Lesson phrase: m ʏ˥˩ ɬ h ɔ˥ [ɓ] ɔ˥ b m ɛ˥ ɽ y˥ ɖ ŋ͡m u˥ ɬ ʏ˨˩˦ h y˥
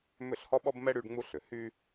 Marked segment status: correct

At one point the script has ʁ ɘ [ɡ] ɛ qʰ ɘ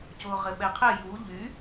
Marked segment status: incorrect: ɓ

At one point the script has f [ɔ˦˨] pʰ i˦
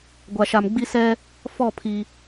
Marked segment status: correct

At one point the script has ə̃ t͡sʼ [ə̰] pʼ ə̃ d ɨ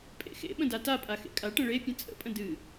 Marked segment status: correct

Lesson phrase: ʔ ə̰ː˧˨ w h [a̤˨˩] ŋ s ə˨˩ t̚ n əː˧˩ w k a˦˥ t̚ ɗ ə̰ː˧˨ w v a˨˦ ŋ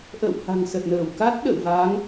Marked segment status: correct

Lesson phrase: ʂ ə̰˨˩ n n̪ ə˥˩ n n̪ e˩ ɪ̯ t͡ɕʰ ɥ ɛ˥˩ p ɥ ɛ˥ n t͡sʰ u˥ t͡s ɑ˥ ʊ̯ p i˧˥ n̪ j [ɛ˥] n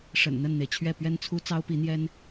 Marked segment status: correct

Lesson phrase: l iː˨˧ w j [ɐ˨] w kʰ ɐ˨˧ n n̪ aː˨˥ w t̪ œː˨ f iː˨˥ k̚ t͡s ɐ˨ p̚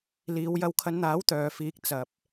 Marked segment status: incorrect: ɐ˧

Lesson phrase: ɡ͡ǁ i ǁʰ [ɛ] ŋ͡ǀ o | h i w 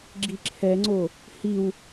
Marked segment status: correct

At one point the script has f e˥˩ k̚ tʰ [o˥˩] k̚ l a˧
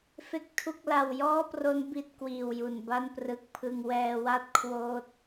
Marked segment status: incorrect: u˥˩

